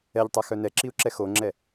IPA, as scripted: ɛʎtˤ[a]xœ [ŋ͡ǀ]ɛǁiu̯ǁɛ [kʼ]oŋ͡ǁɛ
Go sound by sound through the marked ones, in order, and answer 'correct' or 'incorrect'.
correct, incorrect: n, incorrect: x

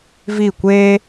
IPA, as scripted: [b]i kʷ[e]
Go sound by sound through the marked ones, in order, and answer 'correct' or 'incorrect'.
incorrect: v, correct

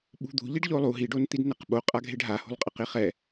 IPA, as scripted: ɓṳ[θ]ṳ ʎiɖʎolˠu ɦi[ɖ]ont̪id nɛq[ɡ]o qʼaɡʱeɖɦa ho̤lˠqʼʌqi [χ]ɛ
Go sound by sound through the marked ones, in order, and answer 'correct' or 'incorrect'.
incorrect: d̪, correct, incorrect: ɓ, correct

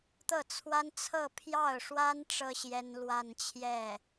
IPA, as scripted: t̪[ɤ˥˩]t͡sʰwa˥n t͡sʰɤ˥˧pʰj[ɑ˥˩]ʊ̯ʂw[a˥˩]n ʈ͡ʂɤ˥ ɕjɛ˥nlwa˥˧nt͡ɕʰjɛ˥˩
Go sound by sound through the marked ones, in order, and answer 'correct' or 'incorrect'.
correct, correct, incorrect: a˥

